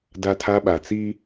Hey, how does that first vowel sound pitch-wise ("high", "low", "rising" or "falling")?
high